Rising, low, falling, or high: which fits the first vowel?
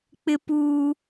high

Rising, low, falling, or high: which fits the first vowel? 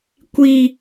low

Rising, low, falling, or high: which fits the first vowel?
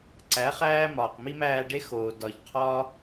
rising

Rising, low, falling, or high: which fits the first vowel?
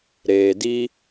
low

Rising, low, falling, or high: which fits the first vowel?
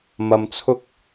low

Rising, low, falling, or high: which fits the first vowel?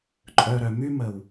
low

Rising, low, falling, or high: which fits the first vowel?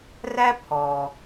high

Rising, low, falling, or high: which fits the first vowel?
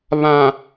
low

